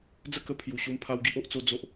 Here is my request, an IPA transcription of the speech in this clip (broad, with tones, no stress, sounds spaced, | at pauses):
d͡z ə˥˧ k ə˦ pʰ j u˨˩ ɕ u˧ m pʰ a˦ w ɡ i˦ ʔ o˦ ʔ t͡s o˦ d͡z o˦ ʔ